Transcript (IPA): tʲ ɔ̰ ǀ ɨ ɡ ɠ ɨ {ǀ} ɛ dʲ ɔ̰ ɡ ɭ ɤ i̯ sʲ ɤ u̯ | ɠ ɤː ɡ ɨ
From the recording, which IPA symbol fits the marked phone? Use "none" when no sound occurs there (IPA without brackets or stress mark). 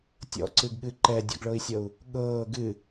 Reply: ǃ